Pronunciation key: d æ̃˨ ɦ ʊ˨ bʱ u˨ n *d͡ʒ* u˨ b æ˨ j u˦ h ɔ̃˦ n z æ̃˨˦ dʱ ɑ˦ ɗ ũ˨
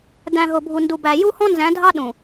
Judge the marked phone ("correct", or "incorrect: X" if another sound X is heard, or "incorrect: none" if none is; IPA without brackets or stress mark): incorrect: d